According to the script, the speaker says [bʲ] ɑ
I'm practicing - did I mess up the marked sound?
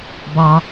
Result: yes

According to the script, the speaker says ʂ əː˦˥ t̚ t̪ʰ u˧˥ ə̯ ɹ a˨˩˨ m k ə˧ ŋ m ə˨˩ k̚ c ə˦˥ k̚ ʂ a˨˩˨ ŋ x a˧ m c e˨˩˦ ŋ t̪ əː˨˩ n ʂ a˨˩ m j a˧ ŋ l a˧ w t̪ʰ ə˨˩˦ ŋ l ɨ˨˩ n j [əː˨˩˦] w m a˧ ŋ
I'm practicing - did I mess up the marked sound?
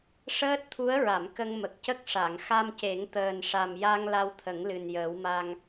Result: no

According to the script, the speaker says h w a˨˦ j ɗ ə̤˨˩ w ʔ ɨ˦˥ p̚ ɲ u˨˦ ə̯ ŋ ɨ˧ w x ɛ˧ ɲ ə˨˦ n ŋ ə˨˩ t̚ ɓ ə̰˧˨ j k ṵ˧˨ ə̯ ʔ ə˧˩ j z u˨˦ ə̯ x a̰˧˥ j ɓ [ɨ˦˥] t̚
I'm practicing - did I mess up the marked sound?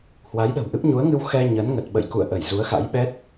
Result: yes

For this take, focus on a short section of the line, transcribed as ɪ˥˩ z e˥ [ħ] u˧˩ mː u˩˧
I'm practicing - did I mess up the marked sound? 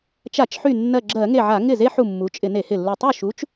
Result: no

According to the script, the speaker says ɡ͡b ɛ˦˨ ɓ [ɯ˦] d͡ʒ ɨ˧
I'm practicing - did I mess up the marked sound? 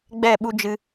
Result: yes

